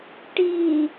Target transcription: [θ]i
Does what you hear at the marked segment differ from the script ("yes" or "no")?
yes